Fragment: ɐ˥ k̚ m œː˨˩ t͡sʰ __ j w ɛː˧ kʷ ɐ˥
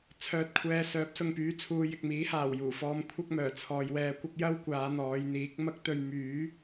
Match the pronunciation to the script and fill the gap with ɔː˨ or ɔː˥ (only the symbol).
ɔː˨